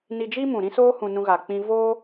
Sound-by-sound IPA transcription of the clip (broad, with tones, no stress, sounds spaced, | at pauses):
n i˧ d͡ʒ i˦ m ũ˨ ɾ ĩ˦ s oː˦ h ũ˧ n ũ˧ ɣ a˨ k͡p ĩ˧ v oː˦